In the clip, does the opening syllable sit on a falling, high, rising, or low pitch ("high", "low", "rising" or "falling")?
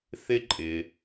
high